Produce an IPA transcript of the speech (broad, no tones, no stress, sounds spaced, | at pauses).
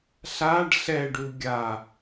ɬ a ɖ ɬ ɛ ɖ u ɡʲ a